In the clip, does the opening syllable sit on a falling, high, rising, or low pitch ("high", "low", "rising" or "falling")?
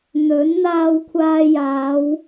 rising